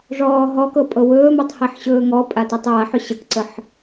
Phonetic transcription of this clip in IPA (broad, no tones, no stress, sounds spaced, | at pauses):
ʐ ɔː ɦ ɔ k ɤ pʼ ɤ w ɵː m ɤ tˤ h e ħ ɕ ɵː ŋ ɔ pʼ a t i tˤ j a ħ ʏ ɕ ə k ǀ ə ħ